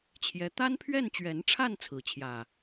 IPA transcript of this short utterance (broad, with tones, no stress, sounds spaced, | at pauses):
t͡ɕʰ j ɛ˦ t̪ a˦ n pʰ ɥ ɛ˥˨ n t͡ɕ ɥ ɛ˨˦ n ʈ͡ʂʰ a˥˨ n t͡sʰ ɹ̩˥˨ t͡ɕʰ j ä˥˨